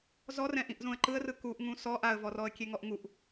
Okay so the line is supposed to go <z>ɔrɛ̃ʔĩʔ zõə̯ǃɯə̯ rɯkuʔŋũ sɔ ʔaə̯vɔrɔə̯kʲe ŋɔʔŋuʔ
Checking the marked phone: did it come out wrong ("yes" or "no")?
no